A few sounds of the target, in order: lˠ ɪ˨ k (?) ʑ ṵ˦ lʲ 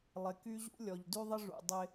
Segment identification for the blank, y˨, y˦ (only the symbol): y˦